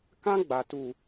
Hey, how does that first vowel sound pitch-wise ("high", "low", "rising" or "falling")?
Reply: high